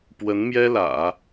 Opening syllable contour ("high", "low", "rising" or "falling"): rising